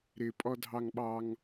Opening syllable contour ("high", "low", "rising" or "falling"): high